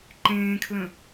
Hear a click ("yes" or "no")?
yes